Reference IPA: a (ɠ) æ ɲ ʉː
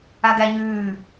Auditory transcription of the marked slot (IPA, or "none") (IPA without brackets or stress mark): ɡ